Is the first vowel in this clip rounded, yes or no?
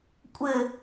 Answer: no